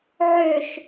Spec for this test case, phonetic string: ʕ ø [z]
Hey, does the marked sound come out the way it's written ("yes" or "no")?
no